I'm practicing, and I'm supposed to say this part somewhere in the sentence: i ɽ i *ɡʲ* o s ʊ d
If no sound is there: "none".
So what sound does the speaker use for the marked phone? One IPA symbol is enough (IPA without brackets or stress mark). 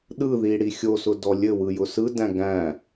xʲ